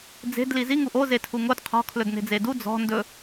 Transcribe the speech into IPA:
d͡z e̤ d l i z i ŋ u ʔ o z e tʰ u ŋ o d qʰ ɔ̤ kʰ l ɵ d n e̤ d͡z e d u d͡z ɔ̤ n d ɵ

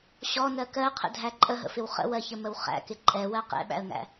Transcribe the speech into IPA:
ɕ ɔ n ɜ k ɜ qʰ ə̰ dʱ æ ǃʼ ə ɦ ə̰ f ɪ w χ ə̰ w ɜ ç ə m ə w χ æ̰ k ɪ ǃʼ ɛ w ɜ q ɛ̰ ɓ æ̰ ə̯ ŋ æ̰

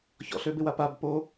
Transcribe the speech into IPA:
ç ɔ̰ ɬ ø b ɪ w a p a b p o

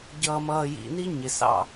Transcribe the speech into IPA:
ɟ ʌː˨ m ʌː˨ j ḭ˨ n i˦ ɲ ɪ˨ s ɑ̰˦˨

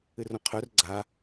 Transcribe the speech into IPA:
ɨ r õ qʰ œ r ɡ͡ǀ a

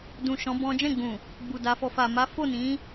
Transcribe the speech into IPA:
d ũ˨ ʃ ɔ̃˨˦ b ɔ̃˦ d͡ʒ ɛ̃˦˨ ɡ͡b ũ˨ | ɡ͡b u˨ d a˨˦ f ɔ˧ f a˨ m a˨˦ f o˦˨ n ĩ˨˦

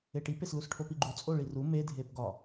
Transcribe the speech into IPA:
e ʈ i p e s l u s ʈʰ o p i ɡ͡ǃ u t͡sʼ o ɭ i r u m e dʱ e p ɡ ɒ

